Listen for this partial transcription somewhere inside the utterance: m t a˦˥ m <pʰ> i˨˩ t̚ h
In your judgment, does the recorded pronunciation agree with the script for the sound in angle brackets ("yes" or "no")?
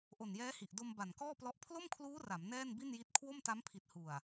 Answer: yes